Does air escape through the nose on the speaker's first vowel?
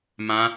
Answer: yes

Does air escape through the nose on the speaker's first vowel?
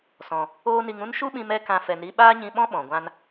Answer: yes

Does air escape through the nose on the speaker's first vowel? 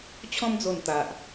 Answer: yes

